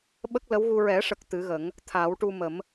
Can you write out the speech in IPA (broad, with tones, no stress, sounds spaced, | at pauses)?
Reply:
ɓ ə˦˥ k̚ l ə˧˥ w ɣ u˧ ɹ ɛ˨˩˦ ʂ ə˨˩ k̚ t̪ ɨ˨˩˦ ɣ ə˨˩˦ ŋ | t̪ʰ a˨˩˦ w ʈ u˧ m ə˨˩˦ m